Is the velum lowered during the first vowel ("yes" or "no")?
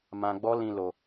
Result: yes